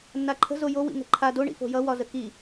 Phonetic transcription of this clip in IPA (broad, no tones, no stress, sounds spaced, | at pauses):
nː a ǃʰ ə̤ z o j o w ḭ ŋ ə̤ ǃʰ a d o ɳ ḭ f o̤ j ʌ w ɒ z ə k i